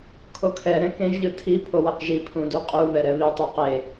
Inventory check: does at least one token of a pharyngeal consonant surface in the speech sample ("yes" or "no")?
no